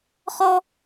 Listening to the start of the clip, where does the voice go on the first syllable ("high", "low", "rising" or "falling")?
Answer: high